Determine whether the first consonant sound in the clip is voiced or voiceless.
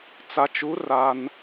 voiceless